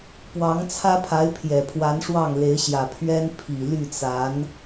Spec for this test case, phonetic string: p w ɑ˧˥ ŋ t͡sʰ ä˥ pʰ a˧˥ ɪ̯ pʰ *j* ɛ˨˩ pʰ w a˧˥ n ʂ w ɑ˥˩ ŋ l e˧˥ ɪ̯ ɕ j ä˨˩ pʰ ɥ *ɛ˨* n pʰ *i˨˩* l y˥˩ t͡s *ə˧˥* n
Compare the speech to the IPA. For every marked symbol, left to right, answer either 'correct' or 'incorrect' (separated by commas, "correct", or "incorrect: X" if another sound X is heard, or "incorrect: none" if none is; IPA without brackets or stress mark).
correct, incorrect: ɛ˥, correct, incorrect: a˧˥